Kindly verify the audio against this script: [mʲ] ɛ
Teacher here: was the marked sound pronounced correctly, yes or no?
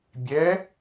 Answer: no